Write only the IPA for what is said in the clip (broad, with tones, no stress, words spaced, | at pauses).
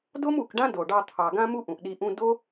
do˦mu˨kɖã˦ do˨ɖɑ˧ t̪ʰɑ˨ɡã˦mu˦ ʔũ˨ʔɗi˧ʔũ˦ do˦